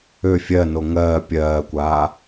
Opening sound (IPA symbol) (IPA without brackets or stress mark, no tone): ø